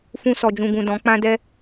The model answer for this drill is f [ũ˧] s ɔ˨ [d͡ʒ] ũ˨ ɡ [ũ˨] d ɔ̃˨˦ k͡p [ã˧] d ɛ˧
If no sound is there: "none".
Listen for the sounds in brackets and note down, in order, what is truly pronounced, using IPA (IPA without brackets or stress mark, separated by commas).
ũ˧, d͡ʒ, ũ˨, ã˧